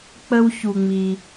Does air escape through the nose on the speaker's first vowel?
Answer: no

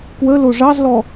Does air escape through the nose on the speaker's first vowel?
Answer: no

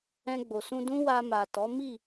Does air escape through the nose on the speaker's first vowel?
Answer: yes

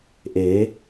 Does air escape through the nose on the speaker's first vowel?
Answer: no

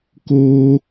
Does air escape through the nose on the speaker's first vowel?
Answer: no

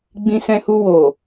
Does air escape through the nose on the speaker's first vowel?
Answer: yes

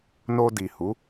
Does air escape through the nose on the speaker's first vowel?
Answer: no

